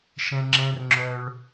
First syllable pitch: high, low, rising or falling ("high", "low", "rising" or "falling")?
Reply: high